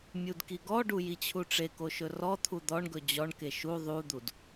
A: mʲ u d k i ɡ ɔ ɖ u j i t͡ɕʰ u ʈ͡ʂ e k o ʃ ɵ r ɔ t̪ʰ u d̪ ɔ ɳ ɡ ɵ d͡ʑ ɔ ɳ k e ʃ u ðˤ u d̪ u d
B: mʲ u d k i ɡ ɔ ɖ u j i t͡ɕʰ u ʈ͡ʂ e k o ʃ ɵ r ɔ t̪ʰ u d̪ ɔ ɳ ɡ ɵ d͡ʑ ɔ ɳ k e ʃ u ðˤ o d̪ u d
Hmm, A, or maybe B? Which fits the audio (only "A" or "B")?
A